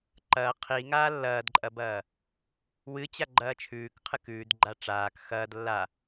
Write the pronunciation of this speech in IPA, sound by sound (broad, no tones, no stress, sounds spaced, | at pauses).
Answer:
ǃ ɐː qʰ i ŋ aː lː ɐː d ǃʼ ɐ b ɐː | w ɨ t͡ɕ a ɡ͡ǃ ɐː t͡ʃʰ ʉː k qʰ ɨ k ʉː d ɡ͡ǃ a ʈ͡ʂ aː k x ɐː d lː a